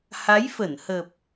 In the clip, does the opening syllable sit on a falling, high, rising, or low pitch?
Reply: rising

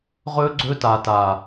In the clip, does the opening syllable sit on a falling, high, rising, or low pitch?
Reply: high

